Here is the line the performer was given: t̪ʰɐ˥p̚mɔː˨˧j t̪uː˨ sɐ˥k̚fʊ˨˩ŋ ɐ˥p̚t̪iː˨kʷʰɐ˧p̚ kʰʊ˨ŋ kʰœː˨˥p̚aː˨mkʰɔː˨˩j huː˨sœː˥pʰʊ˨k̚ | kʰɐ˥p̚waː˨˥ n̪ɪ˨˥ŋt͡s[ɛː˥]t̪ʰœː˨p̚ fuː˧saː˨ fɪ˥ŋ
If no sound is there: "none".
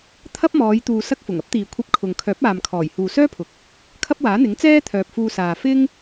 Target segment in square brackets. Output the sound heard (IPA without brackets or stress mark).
ɛː˥